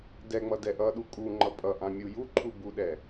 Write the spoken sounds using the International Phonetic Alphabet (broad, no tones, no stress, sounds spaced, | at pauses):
d ɛ ŋ͡m ʌ d ɛ ʔ ʌ ɗ u kʼ u ŋ͡ǃ ʌ pʼ ʌ ʔ ã mʲ u j u ǃʰ u b u ɗ ɛ